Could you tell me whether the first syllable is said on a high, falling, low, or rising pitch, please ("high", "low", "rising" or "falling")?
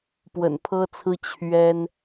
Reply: low